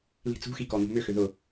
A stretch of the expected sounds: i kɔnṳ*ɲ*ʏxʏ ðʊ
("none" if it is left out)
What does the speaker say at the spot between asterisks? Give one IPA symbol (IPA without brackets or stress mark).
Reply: m